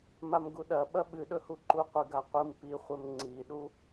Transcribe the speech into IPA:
m a m ɡ u ɗ ɐ ɓ ɐ ɓ ɨ ɗ ɵ h u ǃ u qʷ ɨ ɡ a qʷ ɨ m p i χʷ e m ŋ͡ǀ i ɗ u

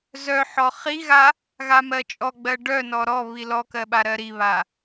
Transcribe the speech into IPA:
z œ ħ ɔ χ i ɣ a | ɣ a m ɜ t͡ʃʼ ɔ ɡ͡b ɜ ɖ œ n ɔ ɾ ɔ β i l ɔ k ɜ ɓ a ɾ ɜ ɾ i β a

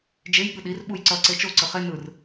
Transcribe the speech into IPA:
d͡ʒ e j ɠ ɯ ɗ i r ɓ u j ǀ ʌ ǀ e t͡ʃ o ǀ ɯ χ e n ɯ r

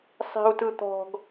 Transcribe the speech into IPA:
sˤ i̤ u̯ t ɯ t̪ ɔ̤ ɡ

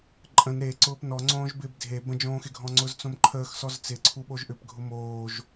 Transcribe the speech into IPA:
ǃʼ ə̃ n ɾ e ǀ ʊː p n ɔ ŋ͡ǀ õː ʒ b ɪ b dʱ e b ə̃ d͡ʒ õː x ɪ ɡʱ ɔ̃ ŋ͡ǀ ʊ z t͡s õ m ǃʰ əː x s ɔ z t͡s ɪ ǀʰ u ɓ o ʒ ʔ ʏ p ɡʱ ʊ m oː ʒ

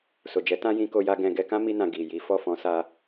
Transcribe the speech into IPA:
s o˨ d͡ʒ ɛ˨˦ t ã˦ j ĩ˧ k o˧ j a˧ ɡ ɛ̃˧ ɡ ɛ˧ k ã˦ m i˧ n ã˨ ɡ i˨ j i˨˦ f ɔ˦˨ f ɔ̃˨˦ s a˧

